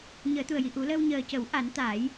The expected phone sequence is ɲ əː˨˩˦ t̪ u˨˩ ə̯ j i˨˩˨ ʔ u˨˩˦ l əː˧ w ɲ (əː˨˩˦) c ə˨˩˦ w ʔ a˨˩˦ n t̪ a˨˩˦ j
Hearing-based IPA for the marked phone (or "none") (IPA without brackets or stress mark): əː˨˩